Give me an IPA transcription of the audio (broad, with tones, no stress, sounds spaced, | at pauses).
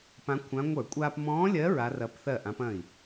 p ã˧˥ kʷʰ ã˧˥ ŋʷ ə˞˧˩˧ kʷʼ aː˧ p m ɔ̃ː˧˥ lʲ ɜ˧˥ ɹ a˧˥ r ɐː˧˥ p θ ɜ˥˩ ʔ ã˧˥ p ɐ̃˥˩ i̯